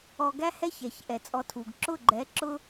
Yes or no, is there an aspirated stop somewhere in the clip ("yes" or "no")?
yes